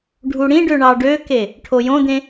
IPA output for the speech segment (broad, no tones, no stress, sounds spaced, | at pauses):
ɖʱ u ɽ ĩ ɖ ø ɳ ɑ ɖ ø k e | ʈʰ o j õ d̪ ẽ